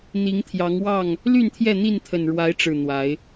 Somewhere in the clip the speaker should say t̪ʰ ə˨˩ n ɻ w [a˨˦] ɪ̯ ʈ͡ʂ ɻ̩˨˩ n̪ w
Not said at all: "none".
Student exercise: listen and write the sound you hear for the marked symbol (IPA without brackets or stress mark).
a˨˦